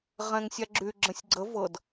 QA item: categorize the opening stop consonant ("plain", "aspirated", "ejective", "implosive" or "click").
click